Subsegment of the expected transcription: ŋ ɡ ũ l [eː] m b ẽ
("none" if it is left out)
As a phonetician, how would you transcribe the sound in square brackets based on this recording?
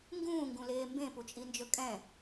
eː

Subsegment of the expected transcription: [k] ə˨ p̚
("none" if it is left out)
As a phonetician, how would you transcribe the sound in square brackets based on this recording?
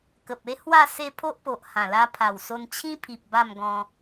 k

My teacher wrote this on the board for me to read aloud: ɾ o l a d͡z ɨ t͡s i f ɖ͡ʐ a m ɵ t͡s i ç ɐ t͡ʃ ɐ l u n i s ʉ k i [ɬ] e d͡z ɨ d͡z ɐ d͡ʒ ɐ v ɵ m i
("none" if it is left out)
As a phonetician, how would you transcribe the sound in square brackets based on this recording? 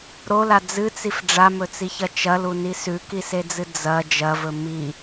s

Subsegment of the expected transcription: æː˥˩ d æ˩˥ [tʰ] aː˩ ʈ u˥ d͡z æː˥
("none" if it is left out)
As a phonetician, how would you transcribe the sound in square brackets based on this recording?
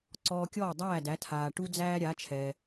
tʰ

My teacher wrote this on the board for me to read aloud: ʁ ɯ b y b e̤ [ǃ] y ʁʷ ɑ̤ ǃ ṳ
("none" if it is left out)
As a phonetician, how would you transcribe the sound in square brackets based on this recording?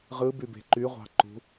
ǃ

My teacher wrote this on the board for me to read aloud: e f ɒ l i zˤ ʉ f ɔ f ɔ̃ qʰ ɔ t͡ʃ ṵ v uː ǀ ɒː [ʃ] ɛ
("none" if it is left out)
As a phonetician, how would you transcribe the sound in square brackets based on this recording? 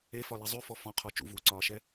ʃ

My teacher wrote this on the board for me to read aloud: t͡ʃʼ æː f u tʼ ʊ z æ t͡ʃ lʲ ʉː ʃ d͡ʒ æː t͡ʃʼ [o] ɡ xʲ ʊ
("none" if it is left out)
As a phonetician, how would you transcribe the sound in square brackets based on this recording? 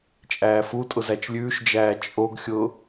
o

